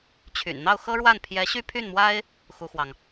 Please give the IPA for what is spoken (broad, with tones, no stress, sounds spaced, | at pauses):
t͡ɕʰ y̰˨˩ n n̪ ɑ˥˩ ʊ̯ x ɤ˥ ɻ w a˥˩ n pʰ j ɛ˧˥ ɕ y˥ pʰ y˥˩ n m w a˥ ɪ̯ | x u˥ x w ɑ˨ ŋ